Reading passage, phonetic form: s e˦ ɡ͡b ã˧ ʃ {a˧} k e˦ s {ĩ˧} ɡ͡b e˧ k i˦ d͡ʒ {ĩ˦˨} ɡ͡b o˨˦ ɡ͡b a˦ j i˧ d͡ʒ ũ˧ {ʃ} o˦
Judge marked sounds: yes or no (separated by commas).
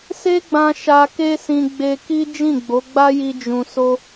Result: yes, yes, yes, no